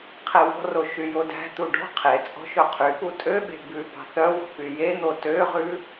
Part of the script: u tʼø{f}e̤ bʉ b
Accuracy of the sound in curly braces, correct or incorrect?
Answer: incorrect